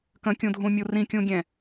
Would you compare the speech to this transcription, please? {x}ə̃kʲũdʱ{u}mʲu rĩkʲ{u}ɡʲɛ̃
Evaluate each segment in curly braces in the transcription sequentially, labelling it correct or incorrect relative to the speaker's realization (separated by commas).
incorrect, incorrect, incorrect